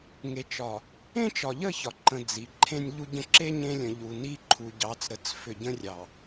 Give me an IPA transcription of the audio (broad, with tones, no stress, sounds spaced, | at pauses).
ŋ e˨ t͡ʃ ɒ˨ | ẽ˦ t͡ʃ ɒ˨ ʎ ə˦˨ ç ɒ˨ ǃ ə̃˨ d͡z i˨˦ ǃʰ ẽ˦ nʲ ʎ u˦ ɟ ə̃˦ ǁ e˦ ɲ ẽ˦ lʲ ə̃˨ ʎ u˨ n i˦ ǃʰ u˨ ɟ ɑ˨˦ t͡s ɾ ə˨ t͡s f ʏ˨ ɟ ə̃˦ rʲ ɑ˨